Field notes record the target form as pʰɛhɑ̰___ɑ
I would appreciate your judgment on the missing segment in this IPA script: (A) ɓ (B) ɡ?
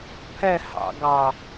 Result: B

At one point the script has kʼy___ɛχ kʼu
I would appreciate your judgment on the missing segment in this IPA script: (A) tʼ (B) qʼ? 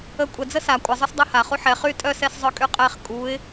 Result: B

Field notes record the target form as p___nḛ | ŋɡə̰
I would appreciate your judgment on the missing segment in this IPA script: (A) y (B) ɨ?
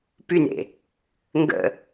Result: A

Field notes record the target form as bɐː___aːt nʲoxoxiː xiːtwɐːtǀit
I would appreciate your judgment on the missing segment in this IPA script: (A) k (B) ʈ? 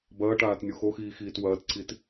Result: B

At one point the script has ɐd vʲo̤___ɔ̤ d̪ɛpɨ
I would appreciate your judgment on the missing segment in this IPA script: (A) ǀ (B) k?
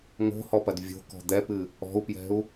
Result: B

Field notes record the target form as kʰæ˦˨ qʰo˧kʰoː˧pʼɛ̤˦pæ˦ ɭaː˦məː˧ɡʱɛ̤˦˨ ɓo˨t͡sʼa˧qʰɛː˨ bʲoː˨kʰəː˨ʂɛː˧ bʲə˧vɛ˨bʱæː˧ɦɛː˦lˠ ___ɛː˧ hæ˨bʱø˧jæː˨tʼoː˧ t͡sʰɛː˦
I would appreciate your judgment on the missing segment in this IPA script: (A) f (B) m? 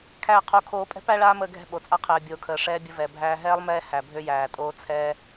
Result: B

